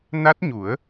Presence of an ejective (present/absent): absent